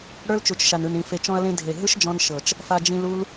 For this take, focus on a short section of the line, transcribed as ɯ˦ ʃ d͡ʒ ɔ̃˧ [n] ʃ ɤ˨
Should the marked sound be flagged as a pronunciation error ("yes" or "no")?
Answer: no